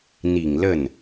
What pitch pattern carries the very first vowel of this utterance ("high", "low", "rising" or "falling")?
low